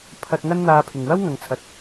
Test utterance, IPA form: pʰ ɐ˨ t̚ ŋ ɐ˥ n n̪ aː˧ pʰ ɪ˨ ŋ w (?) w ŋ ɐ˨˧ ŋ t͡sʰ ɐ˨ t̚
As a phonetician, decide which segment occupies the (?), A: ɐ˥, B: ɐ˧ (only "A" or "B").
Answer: A